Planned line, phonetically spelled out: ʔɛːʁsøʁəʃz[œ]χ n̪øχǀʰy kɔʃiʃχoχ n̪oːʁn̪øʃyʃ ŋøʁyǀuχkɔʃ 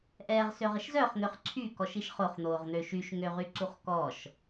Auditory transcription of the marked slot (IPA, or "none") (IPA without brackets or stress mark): œ